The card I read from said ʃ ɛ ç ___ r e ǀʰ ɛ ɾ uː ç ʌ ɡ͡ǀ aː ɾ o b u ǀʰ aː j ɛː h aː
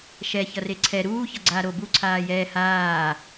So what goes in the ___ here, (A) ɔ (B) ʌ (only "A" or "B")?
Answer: B